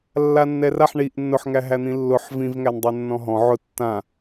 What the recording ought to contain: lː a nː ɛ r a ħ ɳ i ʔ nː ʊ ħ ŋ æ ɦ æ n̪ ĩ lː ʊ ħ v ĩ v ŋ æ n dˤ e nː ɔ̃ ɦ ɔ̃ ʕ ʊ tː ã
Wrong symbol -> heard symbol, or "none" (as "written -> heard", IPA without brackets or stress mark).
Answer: none